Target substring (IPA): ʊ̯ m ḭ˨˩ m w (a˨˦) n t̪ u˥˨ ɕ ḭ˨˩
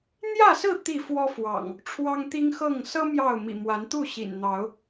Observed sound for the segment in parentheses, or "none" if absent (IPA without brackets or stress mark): a˨˦